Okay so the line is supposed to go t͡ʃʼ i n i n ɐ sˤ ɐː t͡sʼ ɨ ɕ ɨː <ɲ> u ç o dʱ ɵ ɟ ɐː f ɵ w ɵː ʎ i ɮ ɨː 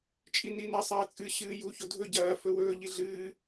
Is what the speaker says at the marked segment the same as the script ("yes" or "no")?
no